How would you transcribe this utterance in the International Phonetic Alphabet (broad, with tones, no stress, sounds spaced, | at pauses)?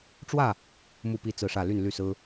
ʈ͡ʂ w ä˥˨ | m u˥˨ p i˥˨ t͡s ɹ̩˥˨ ʂ ä˥˨ l y˥˨ n l y˥˨ s ɹ̩˦